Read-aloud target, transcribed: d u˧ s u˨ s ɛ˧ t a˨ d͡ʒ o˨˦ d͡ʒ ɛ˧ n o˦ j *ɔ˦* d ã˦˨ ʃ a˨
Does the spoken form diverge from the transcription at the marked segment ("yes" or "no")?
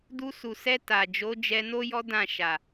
no